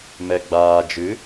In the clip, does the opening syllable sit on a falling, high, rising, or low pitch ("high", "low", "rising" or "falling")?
low